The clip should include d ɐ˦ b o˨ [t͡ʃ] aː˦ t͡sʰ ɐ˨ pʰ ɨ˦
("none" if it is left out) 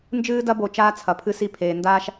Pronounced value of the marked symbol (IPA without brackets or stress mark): t͡ʃ